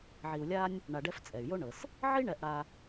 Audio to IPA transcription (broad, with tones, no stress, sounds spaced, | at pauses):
ʕ i˨ u̯ lʲ a˦ nʲ | ɳ a˨ ɖ ɛ˦ f t͡sʼ ɛ˩ y̯ j o˥ ɳ ɤ˩ s | ʕ i˥ ɳ ɛ˨ ʔ ɽ a˨